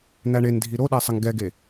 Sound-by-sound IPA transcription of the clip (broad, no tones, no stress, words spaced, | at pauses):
n̪æɳendʱi ɾoɗæ sˤəŋɡɛɡe